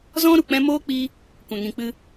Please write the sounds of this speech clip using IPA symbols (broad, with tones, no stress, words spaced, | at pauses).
zɔ̃˦ ɾu˨k͡pɛ̃˦ moː˦k͡pi˧ | kʷɛ̃˨ŋĩ˨k͡pɨ˧